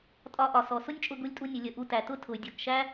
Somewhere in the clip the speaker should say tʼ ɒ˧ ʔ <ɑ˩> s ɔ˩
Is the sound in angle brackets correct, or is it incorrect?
incorrect